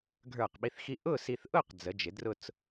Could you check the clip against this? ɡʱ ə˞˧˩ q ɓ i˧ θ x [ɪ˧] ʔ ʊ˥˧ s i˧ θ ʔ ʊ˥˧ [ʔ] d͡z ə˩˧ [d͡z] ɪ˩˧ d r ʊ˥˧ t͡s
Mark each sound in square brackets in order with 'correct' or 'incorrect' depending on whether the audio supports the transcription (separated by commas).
incorrect, incorrect, incorrect